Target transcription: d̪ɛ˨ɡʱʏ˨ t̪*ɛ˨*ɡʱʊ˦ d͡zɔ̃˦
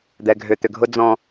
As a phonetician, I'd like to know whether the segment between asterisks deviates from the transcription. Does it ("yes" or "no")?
yes